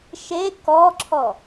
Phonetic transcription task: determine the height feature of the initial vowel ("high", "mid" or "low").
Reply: mid